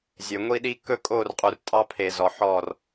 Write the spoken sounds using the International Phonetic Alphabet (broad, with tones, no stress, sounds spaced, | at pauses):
zʲ ø˨ ŋʷ i˦ ɗ i˦ k ɵ˦ kʼ o˦˨ r qʼ u˨ r tʼ ɑ˦ pʰ e˨ z ɔ˨ ħ ɔ˦˨ r